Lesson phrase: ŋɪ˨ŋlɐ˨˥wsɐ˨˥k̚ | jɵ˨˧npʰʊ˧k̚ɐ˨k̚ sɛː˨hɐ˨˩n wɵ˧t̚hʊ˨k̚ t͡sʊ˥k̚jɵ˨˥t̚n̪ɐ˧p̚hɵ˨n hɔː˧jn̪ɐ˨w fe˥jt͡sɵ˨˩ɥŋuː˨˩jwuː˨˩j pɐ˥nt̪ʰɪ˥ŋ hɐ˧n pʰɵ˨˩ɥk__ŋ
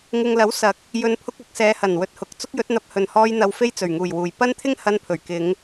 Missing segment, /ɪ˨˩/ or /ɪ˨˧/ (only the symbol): ɪ˨˧